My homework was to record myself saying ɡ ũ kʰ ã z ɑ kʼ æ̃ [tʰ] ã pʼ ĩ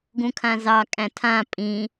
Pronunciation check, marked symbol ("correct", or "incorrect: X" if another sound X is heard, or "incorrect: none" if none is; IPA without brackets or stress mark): correct